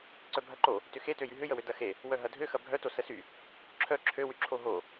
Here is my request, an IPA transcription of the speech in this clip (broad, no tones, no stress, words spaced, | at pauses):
ǀœbʱɐǃo | tʏxetøjy ɦʏjəwø dɐxe | wœɦɐdʱø xɐbʱœto səsy | ǁʰœ ǁʰøwyǁʰo ɦo